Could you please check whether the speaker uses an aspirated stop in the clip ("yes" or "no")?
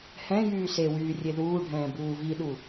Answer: no